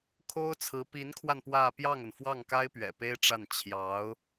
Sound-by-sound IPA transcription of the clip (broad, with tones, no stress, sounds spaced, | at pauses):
kʰ o˥ ʊ̯ t͡sʰ ɹ̩˧˥ p i˧˥ n kʰ w a˧ n p w ä˥˧ p j ɑ˥˩ ŋ ə˩ n f w ɑ˥˩ ŋ k a˥ ɪ̯ p ɥ ɛ̰˨˩ p e˥ ɪ̯ ʈ͡ʂ a˥˩ n t͡ɕʰ j ɑ˧˥ ʊ̯